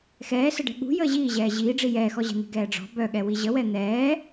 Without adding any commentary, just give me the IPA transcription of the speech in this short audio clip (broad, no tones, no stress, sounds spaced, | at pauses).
x ɛː s ə ɖ ɛ̤ ɠ ṳ j əː ʑ iː ʑ ɛː ʑ iː ɖ͡ʐ i j ɛː x ɔ ʑ ɛ̤ n̪ i̤ ɡ ɛː ɖ͡ʐ ɔ̤ b œ ɠ ɛ w i ʑ ə w ɛ n̪ ɛː